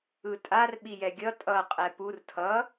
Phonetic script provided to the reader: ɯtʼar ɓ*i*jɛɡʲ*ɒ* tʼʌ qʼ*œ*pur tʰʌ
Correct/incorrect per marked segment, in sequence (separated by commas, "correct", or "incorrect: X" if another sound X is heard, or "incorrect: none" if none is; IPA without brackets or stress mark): correct, incorrect: ʌ, incorrect: ɛ